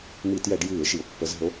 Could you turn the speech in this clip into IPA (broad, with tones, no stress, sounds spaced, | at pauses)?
m i˧˩˧ t j ɛ˧˩˧ ɖ j ɨː˧˩˧ e̯ ʃ i˩ o̯ pː ə˨˦ z ə̤˨˦ o̯